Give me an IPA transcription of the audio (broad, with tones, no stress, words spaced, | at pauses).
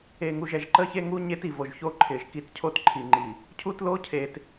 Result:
e˨ŋu˨ʒɛ˨ʒ ǃə˦çe˦ŋu˦ ɲe˦ti˨vo˨ʒço˦ ǃʰɪ˨ʒ ki˨tcʰo˦t ǃʰi˨ŋ͡ǃi˨ | cʰu˦tlo˦ cʰe˨t